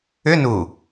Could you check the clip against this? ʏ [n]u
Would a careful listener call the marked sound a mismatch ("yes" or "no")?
no